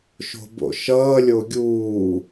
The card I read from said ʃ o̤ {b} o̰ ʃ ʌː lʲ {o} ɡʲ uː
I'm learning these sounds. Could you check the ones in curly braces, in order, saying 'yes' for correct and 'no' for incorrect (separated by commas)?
yes, yes